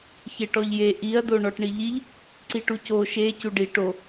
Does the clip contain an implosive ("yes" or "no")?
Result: no